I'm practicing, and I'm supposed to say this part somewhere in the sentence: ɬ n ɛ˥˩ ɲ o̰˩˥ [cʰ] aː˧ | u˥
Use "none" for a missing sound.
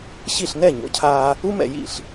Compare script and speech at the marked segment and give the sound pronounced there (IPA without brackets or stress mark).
cʰ